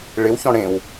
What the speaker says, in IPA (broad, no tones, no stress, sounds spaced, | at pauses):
ɭ ɪ w ç ɔ̃ ɽ ẽ w